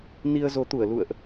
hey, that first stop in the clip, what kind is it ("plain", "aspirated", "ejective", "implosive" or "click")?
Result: plain